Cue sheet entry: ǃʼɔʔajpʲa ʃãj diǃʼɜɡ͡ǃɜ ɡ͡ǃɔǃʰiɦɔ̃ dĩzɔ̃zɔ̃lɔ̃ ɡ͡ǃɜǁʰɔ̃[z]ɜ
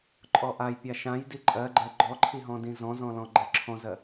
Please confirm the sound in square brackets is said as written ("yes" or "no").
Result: yes